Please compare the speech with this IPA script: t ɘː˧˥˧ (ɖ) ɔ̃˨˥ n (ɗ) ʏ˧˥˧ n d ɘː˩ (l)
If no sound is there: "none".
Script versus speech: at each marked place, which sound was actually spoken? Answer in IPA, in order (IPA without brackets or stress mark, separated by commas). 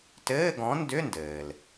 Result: ɡ, d, l